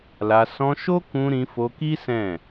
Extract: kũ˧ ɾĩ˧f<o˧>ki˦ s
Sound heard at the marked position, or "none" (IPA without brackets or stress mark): o˧